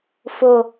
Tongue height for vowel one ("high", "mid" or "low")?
high